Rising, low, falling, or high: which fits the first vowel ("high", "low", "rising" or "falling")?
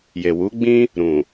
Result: low